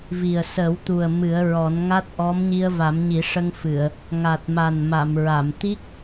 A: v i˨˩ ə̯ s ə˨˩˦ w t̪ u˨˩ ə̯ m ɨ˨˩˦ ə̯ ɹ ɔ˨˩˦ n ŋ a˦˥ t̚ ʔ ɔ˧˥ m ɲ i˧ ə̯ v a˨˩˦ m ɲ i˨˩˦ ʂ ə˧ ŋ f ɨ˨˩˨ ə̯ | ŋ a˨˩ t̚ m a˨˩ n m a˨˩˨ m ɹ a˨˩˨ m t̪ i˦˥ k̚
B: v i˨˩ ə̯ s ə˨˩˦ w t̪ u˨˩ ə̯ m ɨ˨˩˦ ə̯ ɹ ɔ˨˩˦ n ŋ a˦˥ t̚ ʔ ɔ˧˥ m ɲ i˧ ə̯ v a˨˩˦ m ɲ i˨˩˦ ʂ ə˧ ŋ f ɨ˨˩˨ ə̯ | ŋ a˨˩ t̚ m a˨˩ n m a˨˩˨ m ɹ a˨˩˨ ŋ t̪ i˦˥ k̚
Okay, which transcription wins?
A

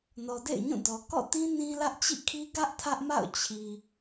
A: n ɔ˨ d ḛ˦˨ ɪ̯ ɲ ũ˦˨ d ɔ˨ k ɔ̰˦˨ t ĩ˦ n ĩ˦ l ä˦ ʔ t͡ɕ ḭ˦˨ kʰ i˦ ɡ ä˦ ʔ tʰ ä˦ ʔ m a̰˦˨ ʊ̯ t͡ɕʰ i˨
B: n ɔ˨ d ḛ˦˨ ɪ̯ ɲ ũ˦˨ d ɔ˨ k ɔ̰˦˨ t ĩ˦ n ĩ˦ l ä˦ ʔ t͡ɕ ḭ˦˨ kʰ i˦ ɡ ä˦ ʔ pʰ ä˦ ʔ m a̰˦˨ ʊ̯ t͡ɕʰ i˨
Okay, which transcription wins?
A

